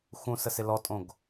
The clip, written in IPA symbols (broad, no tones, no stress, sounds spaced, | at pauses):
x ũ s ə s ɪ l ɔ tʼ õ ɡ